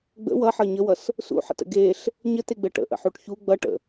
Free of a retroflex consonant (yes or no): no